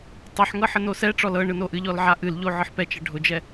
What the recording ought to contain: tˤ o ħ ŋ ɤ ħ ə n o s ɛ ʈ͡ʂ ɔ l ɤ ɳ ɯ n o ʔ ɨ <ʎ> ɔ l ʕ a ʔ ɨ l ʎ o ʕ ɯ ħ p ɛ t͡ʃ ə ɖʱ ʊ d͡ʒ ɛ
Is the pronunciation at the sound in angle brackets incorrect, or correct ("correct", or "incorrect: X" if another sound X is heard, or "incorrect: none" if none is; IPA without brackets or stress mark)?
correct